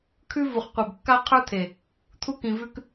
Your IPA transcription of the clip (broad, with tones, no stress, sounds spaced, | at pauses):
kʰ ʉ˦ v u˨ χ qʷ e˨ b kː a˦ qʰ ə˞˦ t̪ʰ e˨ | t̪ʰ u˦ k ĩ˨ v ʉ˦ k